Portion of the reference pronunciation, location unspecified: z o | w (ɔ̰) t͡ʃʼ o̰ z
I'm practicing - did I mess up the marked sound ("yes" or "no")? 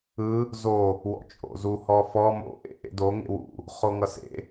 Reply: no